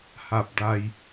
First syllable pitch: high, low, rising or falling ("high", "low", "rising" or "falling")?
low